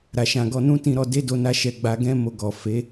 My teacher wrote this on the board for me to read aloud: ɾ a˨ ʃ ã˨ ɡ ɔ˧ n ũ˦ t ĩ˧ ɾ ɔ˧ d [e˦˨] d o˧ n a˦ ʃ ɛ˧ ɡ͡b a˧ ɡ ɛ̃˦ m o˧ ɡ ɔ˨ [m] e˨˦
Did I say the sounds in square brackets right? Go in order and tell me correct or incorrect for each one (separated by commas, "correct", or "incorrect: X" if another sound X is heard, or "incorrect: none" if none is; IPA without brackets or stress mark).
incorrect: e˦, incorrect: f